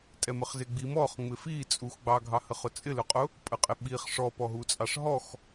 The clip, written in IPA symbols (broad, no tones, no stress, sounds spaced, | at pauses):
tʼ ɛ m ə χ z ɪ ɡ͡b i m ɔ χ ŋ͡m ɪ f i t͡sʼ u x ɡ͡b ɑ ɡʱ ɑ h ə χ ʊ t͡sʼ ɪ l ʊ qʼ ʊ | pʼ ə qʼ ɪ ɓ i χ ʂ ɔ p ɔ ɦ u t͡sʼ ɑ ʂ ɦ ɔ x